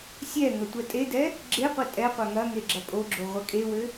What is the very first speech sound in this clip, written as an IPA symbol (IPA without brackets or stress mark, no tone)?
sʲ